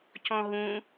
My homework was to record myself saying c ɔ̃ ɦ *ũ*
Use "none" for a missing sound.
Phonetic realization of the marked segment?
ũ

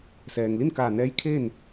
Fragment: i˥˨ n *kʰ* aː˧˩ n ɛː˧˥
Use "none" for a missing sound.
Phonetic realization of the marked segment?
k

